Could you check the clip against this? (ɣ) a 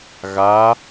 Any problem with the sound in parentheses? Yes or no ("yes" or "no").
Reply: no